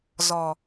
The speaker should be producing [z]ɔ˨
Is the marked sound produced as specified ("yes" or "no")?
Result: yes